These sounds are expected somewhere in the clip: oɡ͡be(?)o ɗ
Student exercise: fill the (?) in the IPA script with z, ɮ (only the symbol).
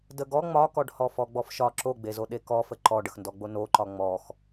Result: z